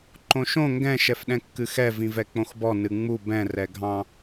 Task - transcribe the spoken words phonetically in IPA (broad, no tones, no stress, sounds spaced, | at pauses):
ǃ õ ʃ õ ŋ ɡ ɛ̃ ʃ ɛ f ɗ ɛ̃ kː ɨ x ɛ v ĩ v ɛ k͡p õ x b ɔ n ɨ ŋ͡m u b ɛ̃ r ɛ ɡʱ ɑ̃